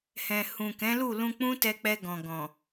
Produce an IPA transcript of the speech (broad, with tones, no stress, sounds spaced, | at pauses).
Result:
h ɛ̃˨ h ũ˨ k ɛ̃˨˦ l u˦˨ l ũ˧ k͡p ũ˦ t ɛ˧ k͡p ɛ˧ ɡ ɔ̃˨ ɡ ɔ̃˨